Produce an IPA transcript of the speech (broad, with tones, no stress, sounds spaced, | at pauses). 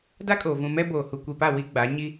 d a˦ kʼ oː˨ v ũ˨ m ɛ˦ b oː˨ h u˨ kʷ i˨ p a˦˨ w i˦ ɡ͡b a˨˦ ɲ i˦